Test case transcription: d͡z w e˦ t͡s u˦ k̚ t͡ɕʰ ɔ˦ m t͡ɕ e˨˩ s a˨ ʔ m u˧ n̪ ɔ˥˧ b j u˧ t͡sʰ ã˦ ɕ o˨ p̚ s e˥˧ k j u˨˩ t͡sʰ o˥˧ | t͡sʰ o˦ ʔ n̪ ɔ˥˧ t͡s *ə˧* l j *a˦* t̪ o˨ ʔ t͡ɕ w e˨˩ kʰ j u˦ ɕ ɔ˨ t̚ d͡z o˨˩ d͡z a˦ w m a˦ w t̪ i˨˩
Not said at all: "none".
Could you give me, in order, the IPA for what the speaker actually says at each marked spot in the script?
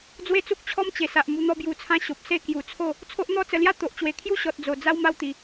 ə˧, a˦

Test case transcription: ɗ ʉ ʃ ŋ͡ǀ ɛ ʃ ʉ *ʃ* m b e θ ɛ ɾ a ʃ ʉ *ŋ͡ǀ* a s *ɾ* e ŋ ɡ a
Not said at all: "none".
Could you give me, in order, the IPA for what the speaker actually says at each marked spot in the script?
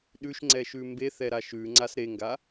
none, ŋ͡ǀ, ɾ

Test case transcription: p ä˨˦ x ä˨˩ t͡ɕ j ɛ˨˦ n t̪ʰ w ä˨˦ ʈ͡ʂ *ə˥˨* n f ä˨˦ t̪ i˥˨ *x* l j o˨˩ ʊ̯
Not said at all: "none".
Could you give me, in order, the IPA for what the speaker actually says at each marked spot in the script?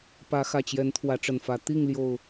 ə˨˩, ŋ

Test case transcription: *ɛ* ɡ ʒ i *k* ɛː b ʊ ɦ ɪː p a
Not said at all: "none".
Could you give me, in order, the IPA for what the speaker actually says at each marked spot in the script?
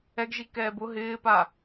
ɛ, k

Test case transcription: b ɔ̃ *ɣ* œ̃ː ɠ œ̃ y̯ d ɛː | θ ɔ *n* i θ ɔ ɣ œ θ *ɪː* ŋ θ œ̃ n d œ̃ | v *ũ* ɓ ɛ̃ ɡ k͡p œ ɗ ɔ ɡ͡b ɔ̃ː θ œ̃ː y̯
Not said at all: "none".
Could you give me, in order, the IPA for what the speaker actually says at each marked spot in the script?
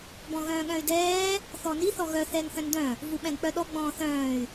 ɣ, n, ɛː, u

